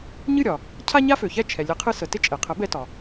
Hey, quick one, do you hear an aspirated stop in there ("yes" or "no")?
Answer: yes